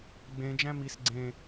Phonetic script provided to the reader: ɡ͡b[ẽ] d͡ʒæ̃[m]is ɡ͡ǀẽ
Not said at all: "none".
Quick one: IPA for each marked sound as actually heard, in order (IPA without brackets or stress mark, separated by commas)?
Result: ẽ, m